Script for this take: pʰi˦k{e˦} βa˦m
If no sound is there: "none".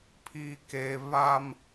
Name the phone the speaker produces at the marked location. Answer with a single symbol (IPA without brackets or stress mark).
e˦